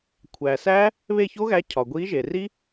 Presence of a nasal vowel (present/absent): absent